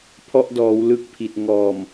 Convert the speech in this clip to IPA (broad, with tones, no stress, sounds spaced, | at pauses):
pʰ ɔ˦˥ ʔ d ɔː˩˦ w l ɯ˦˥ k̚ pʰ i˨˩ t̚ ŋ ɔː˨˩ m